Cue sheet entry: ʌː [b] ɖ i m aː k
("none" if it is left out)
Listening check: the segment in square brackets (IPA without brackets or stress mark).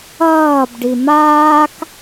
b